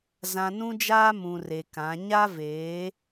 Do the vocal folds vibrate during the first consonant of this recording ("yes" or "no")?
yes